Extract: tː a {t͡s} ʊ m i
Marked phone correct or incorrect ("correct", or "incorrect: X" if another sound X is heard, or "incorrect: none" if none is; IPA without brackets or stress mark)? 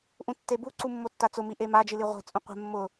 correct